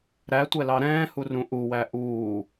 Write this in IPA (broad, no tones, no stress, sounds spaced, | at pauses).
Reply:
ɾ æ tʷ ɛ l ɑ ɾ ɛ̃ː h u r ũ ʔ u w æ ʔ uː